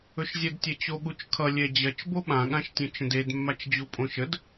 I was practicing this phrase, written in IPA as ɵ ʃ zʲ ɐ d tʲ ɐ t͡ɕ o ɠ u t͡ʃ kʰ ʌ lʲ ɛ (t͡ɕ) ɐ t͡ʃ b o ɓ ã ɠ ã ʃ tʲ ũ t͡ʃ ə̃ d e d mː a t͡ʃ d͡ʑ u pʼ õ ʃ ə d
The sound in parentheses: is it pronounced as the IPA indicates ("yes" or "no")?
no